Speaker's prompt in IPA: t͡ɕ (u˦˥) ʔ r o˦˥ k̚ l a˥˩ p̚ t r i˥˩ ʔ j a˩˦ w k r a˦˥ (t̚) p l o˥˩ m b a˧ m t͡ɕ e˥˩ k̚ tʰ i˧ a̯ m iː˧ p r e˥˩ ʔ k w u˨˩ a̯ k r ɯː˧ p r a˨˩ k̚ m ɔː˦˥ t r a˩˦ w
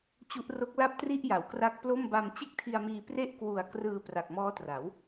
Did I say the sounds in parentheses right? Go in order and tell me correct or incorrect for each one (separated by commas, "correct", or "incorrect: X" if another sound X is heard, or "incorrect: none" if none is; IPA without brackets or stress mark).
correct, incorrect: k̚